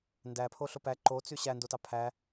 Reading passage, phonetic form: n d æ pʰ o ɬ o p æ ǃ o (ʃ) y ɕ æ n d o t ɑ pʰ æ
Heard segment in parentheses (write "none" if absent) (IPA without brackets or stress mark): t͡s